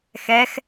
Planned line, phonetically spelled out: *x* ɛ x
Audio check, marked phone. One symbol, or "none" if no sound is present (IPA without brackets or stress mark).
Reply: x